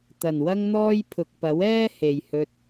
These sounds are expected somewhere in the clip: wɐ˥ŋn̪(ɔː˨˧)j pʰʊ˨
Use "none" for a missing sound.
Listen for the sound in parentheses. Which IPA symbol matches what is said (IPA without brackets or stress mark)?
ɔː˥